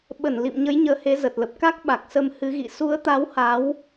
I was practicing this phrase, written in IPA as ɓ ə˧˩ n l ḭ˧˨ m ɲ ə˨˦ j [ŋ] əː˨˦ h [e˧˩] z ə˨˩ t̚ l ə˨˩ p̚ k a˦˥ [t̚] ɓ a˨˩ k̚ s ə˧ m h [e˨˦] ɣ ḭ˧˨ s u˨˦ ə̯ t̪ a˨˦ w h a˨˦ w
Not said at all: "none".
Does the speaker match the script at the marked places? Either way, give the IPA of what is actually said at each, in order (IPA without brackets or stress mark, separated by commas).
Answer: ɲ, e˨˦, k̚, ɨ˨˦